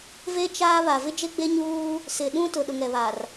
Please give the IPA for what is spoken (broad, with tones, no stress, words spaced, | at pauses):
ve˦ t͡ʃaː˦ βa˨ vɪ˦d͡ʒe˦ɡ͡be˦ɲuː˦ | sɪ˨ɗũ˦tʊ˨ ɗʊ˨ŋɛ˨βa˨r